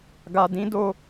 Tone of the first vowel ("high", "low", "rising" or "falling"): low